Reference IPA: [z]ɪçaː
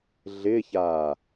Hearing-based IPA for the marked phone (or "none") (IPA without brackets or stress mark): ɮ